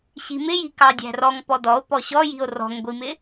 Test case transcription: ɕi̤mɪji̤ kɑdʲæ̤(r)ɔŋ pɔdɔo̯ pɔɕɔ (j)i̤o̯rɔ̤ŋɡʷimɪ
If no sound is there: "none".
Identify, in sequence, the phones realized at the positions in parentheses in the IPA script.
r, j

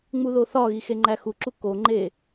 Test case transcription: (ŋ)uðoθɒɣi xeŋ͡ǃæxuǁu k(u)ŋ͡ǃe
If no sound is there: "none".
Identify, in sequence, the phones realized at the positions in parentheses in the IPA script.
ŋ͡m, o

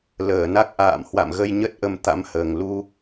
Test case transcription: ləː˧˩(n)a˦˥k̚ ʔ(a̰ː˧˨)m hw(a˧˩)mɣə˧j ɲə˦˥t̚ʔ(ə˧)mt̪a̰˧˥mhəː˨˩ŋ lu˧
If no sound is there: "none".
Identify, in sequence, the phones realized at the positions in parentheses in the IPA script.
n, a̰ː˧˨, a̰˧˨, ə˧

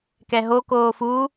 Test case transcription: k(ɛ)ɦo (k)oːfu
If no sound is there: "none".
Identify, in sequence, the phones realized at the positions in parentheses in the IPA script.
ɛ, k

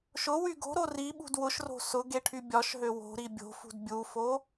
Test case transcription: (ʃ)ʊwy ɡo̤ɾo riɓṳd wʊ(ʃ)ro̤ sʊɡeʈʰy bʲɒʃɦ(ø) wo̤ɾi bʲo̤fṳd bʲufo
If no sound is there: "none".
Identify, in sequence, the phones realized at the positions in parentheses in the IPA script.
ʃ, ʃ, ø

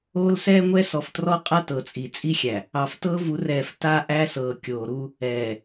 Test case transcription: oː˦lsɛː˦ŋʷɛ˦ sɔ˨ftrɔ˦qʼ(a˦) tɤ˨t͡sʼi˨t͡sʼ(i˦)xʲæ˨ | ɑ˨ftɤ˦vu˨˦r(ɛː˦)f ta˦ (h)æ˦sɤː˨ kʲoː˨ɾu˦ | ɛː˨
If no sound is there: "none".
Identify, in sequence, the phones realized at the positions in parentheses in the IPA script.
a˦, i˦, ɛː˨, ʔ

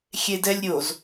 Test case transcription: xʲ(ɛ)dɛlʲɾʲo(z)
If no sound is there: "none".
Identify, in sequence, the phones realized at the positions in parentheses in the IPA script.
e, z

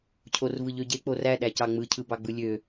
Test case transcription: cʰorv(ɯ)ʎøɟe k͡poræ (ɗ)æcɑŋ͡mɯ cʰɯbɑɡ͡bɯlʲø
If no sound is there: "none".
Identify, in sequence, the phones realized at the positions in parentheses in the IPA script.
ɯ, ɗ

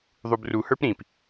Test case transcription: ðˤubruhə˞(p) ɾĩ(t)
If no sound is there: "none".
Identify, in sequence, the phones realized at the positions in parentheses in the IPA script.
p, p

